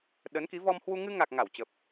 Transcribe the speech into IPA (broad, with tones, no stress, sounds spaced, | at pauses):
ɗ ə˨˦ n k i˨˦ v ɔ˧ m h w u˧ ŋ ɨ˧ ŋ a˨˩ k̚ ŋ a˧˩ w t͡ɕ ə˨˩ p̚